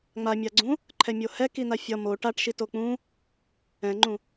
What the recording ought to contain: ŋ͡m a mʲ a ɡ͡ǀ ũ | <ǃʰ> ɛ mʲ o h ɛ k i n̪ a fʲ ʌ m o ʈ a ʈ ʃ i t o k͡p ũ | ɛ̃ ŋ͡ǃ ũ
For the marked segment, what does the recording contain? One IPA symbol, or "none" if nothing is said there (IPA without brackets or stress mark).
ǃʰ